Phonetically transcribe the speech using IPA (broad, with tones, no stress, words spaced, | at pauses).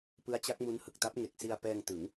pɯ˦˥a̯t͡ɕa˦˥k̚mu˦˥n hɯ˨˩k̚ta˦˥p̚ ŋe˨˩k̚si˧a̯pɛː˧ŋtɯ˩˦ŋ